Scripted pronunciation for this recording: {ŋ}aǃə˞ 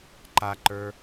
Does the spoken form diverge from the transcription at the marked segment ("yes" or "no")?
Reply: yes